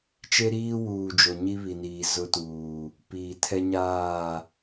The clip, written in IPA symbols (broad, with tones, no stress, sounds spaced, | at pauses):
t͡ʃ e˦ ɾ iː˦ w uː˨ d͡ʒ o˨ ɲ i˦ β i˨ n iː˨ z ʊ˦ t uː˨ | p iː˨ tʰ ɛ˦ ɲ aː˦˨